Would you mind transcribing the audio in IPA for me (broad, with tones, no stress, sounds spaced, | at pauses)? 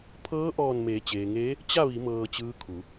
pʰ ɤː˧˥ ʔ ɔː˧˩ n m eː˩˧ t͡ɕ eː˩ ŋ eː˧˥ | t͡ɕ a˥˨ ʋ i˩˧ m ɤː˧ t͡ɕ ɯː˧˥ kʰ u˩˧